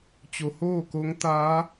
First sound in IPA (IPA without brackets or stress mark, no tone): t͡ɕ